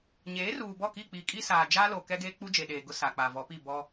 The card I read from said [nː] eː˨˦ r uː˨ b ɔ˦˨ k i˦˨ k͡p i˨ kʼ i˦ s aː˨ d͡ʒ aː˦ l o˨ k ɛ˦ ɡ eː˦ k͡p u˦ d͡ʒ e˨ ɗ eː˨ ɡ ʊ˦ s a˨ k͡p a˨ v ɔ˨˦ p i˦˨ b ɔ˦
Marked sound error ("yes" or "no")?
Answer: yes